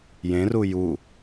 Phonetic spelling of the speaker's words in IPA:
jẽru ju

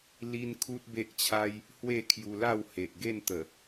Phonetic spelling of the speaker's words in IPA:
li˦nkʰu˦t̚be˦ʔt͡ɕʰa˦j | hwe˥˧kʰju˧la˥˧whe˨ʔ ɡe˥˧nt̪ə˨˩

